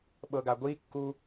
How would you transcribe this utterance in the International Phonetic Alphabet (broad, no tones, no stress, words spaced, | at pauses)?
ɓɤɡaɡʷikːu